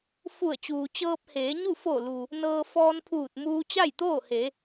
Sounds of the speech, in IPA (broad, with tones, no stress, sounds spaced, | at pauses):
f u˧˩ ə̯ t͡ɕ uː˩ t͡ɕ ɤː˧ p̚ h eː˩˧ ɲ u˥˨ f o˧˩ l u˩ | n ɤː˧ f ɔː˧ n pʰ uː˧˩ t̚ m uː˧ t͡ɕ a˥˨ j t̪ oː˥˨ h e˩˧